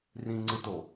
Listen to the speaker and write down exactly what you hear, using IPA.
rĩŋ͡ǀɯto

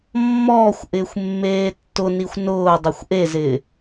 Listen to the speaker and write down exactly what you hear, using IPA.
mːɔːxʷ ʔɪːxʷmːeːtːʊnixʷ nʊː dˤexʷʔezɪː

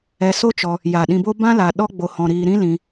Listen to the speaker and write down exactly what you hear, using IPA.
ɛ˧so˦t͡ʃɔ˧ | ja˨ ɗĩ˧bo˦ bã˦ la˧ ɗɔ˦ ɡ͡bo˧hɔ̃˧ɾiː˧ ɾĩ˦lĩ˧

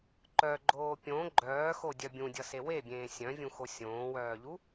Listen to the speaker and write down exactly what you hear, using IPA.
ǃœɡ͡ǃoː pʲõ ɡ͡ǃœːxodʲœ bʲũdʲʌse webʲẽː sʲœ̃vʲũxo sʲõːwœːʎu

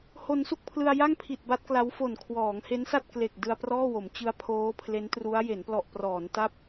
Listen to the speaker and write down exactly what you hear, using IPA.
ho˧nsu˥˩k̚pʰlɯ˧a̯ ja˥˩ŋpʰi˨˩t̚ ba˦˥t̚kla˦˥wfo˨˩n kʰwɔː˩˦ŋhe˦˥nsa˥˩t̚ kle˨˩k̚ dɯ˧a̯prɔː˥˩wo˩˦m t͡ɕɯ˦˥a̯pʰoː˦˥pʰle˦˥ntru˦˥a̯ je˩˦nplɔ˨˩ʔprɔː˩˦n ta˥˩p̚

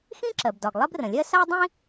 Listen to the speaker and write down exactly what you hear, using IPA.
xĩ˥ǁɜ˩bdɒ˩ɡ lˠɜ˥brə̃˩lʲɜ˥ sa˥dˤĩ˥

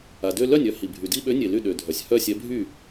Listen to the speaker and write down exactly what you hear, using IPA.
a˩dø˥˧ lœ˥˩nʲ œ˥˧hi˩ bʱy˩di˥˧ɓø˨˥ nʲe˩ ly˥˩ɗø˩dʱœ˩sʲ hœ˥˧sʲɛ˨˥bʱy˥˩

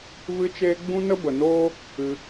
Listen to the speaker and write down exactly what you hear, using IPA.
vɨ˦t͡ʃeː˦ ɡ͡bũ˦nə˦bə˨noː˦ | ɨ˧

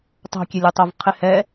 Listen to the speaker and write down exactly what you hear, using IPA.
tˤo̤kʲelʲotˤov qʰɪhɛ

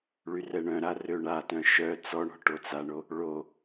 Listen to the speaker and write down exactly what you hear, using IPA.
ɭyrɛɳœ̃ɾa røɳatœ̃ ʃœ t͡sɔɳɔ̤ ʈot͡saɳo | ɭo

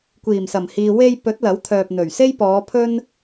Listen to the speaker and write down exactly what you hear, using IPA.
kʷiː˨˩msɐ˨˩mhiː˨ we˧j pɵ˨˥t̚ lɐ˨˥wt̪ʰœː˨p̚n̪ɵ˨˩ɥ se˥jpɔː˨˧pʰɵ˥n

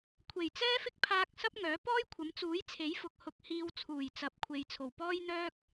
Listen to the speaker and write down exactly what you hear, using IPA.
kʷʰe˨˩jt͡sɛː˥fɪ˥k̚ pʰaː˧k̚ sɐ˥p̚ŋœː˨˥ pɔː˥jkʷʰɐ˨˥m t͡suː˨˥jt͡sʰe˨˥jfʊ˨k̚ hʊ˧k̚hiː˧w t͡sʰuː˨˩jt͡sɐ˨˥p̚kʷʰe˨j t͡sʰo˨˩wpɔː˥jn̪œː˥k̚

